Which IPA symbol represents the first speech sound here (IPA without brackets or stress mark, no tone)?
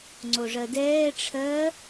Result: ŋ͡ǀ